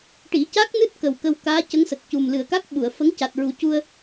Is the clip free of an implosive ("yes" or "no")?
no